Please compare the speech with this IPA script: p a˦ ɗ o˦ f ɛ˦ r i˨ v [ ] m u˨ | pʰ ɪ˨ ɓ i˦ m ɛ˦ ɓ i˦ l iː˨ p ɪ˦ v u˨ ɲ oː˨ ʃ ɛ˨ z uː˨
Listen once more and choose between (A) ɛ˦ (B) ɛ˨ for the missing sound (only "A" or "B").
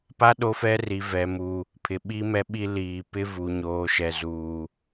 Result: B